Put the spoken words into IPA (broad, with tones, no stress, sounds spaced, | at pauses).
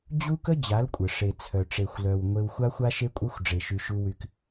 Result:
d͡ʑ u˦ k ə˦ d͡ʑ a˨˦ l kʷʼ ə˨ ʂ e˨ t͡sʰ œ˨ ʈ͡ʂ e˨ xʷ l œ˨ w ŋʷ e˧ w xʷ a˦ xʷ a˦ ʃ e˧ kʷʼ œ˧ xʷ ɖ͡ʐ e˨ ʃ y˨ ʃ u˧ w y˧ k